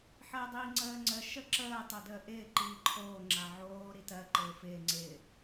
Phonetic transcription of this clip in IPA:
ħəːdˤiːŋ͡ǀəːŋ͡ǀə ʃəǁəː tˤodəːʔɪː ǃiːǃʰoː ŋ͡ǁaʕoː ɾitɜ ǃɪːfɪː ŋ͡ǀɪ

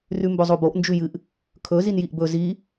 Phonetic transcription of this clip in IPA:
rʉmbɵzˤoboʔ nd͡ʒʉjɨʔ | kʰɵ zinjiʔbɵ zi

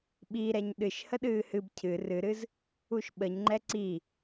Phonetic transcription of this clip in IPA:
ɓiɾɛɲ ɗɨʃ həɗɨːhɨb cʰɨ rɨɾɨz | uʃɓəɲŋ͡ǃɛ ǀi

